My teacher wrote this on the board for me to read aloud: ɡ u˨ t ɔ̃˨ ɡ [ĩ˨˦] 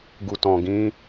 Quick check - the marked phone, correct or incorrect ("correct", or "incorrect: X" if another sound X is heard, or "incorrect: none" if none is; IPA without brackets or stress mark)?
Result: correct